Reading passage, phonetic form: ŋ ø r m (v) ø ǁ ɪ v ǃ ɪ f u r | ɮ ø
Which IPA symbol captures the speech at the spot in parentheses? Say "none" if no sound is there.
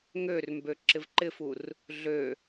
b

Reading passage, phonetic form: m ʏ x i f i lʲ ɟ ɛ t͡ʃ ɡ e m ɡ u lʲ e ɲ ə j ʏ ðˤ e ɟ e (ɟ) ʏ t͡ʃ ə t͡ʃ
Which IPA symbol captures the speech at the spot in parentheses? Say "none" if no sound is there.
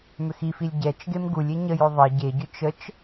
ɟ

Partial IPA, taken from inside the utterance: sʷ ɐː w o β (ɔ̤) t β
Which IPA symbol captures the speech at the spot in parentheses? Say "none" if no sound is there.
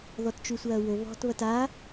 ɔ̤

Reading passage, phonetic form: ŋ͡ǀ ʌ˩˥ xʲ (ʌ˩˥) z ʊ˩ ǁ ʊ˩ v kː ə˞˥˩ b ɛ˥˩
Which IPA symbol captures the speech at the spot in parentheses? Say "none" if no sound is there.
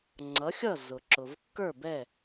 ʌ˥˩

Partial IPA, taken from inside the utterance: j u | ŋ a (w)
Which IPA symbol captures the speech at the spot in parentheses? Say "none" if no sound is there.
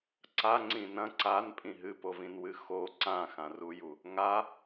none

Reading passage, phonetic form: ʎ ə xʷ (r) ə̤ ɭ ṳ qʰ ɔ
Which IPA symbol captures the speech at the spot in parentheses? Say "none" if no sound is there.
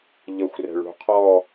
r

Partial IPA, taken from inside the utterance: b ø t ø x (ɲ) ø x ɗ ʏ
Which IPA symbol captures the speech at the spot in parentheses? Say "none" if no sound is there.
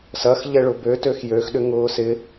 j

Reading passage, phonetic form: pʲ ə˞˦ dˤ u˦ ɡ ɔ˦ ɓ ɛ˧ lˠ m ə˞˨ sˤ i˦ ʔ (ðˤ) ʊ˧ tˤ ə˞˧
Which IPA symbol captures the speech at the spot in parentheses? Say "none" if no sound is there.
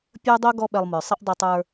dˤ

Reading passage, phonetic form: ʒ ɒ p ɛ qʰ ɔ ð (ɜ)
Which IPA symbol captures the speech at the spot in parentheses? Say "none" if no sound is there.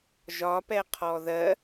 ɜ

